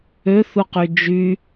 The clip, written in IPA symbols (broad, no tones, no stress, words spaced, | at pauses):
øθuqy d͡ʒy